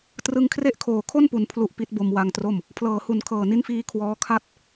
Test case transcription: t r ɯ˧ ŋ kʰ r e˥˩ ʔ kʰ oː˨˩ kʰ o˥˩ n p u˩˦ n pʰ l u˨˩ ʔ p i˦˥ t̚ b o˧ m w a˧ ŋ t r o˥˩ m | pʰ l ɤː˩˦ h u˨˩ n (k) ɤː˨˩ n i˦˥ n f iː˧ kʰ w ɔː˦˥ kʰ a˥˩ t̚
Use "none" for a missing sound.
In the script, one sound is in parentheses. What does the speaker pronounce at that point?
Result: kʰ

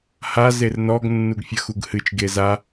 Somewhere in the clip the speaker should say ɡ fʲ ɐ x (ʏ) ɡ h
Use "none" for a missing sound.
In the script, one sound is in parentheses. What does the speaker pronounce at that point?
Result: u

